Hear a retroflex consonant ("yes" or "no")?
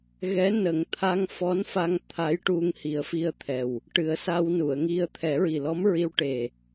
yes